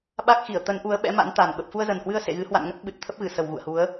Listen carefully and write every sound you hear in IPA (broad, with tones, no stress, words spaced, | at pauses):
ɓa˦˥k̚ xi˧˩ə̯t̪ə˨˦nʔu˨˦ə̯ ɓɛ̰˧˥ma̰˧˥nt̪a˨˩n ɓə˨˩p̚fu˧ə̯zə˨˩nhwɨ˧ə̯ sḛ˧˨ɣɨ˨˦ hwa̰˧˨nŋə˦˥t̚ ɓɨ˨˩t̚t̪ʰə˦˥p̚ ɣɨ˧˩sə˨˩wɣṵ˧˨ə̯hu˨˦ə̯